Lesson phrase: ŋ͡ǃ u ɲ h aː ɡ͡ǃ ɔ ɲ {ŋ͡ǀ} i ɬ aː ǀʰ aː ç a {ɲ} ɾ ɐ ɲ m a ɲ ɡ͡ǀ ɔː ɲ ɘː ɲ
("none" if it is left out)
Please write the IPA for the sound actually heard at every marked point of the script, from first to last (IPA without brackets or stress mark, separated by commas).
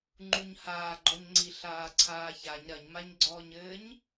ŋ͡ǀ, ɲ